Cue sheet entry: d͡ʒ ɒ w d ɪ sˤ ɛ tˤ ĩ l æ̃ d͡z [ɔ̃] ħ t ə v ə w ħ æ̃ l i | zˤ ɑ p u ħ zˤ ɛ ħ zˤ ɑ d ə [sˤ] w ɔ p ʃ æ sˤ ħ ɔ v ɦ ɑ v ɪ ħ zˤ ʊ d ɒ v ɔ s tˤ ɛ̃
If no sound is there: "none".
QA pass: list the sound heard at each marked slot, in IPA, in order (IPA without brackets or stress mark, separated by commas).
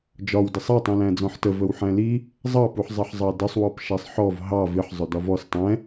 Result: ɔ̃, sˤ